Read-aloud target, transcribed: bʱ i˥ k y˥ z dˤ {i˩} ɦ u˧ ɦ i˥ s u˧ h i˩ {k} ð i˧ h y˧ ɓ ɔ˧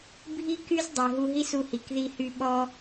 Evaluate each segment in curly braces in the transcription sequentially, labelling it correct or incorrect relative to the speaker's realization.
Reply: correct, correct

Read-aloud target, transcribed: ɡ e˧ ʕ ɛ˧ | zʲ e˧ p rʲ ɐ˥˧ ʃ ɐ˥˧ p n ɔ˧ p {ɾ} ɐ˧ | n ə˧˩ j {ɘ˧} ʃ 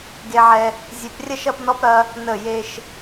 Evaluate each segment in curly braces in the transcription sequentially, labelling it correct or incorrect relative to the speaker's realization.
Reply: correct, incorrect: e˧

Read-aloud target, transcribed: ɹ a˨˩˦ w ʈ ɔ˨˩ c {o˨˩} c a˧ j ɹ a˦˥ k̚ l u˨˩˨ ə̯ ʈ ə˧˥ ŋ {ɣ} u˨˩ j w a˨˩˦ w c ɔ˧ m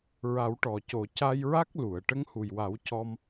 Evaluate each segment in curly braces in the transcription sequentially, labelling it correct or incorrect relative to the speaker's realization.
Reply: correct, incorrect: h

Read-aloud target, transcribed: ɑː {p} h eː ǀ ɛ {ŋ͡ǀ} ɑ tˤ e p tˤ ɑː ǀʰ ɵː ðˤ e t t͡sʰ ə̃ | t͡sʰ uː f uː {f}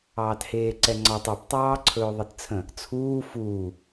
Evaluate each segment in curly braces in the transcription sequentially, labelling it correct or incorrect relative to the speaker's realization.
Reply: incorrect: t, correct, incorrect: none

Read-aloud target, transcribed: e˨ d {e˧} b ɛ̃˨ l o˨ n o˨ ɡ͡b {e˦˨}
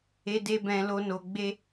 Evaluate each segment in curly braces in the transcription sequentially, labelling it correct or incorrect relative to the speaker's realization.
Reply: incorrect: e˨, incorrect: e˧

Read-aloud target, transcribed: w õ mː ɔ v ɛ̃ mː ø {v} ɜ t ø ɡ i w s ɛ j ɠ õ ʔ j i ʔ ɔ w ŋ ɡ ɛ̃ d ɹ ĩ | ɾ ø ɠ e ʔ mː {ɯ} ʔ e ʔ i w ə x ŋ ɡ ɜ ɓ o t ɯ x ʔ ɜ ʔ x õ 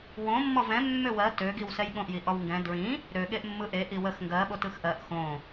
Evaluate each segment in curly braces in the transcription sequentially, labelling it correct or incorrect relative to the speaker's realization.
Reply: incorrect: w, correct

